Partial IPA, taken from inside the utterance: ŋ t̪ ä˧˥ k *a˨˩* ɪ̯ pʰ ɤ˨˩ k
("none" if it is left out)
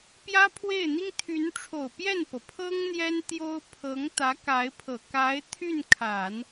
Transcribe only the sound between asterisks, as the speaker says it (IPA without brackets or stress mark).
a˧˥